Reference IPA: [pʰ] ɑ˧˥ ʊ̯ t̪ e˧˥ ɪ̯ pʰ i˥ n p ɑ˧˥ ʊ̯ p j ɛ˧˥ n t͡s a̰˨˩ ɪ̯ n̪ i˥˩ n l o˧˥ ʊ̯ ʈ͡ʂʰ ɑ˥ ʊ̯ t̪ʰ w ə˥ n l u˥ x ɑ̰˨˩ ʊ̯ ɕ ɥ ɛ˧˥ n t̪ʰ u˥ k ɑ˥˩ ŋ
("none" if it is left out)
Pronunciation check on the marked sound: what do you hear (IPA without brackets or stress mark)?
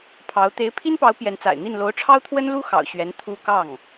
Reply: pʰ